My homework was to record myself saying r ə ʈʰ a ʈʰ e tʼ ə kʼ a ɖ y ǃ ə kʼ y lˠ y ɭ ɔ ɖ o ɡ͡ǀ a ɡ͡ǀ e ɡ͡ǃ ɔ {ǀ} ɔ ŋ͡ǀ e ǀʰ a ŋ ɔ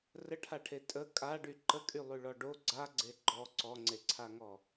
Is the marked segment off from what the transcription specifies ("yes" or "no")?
no